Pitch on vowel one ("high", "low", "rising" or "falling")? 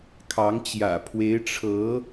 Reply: rising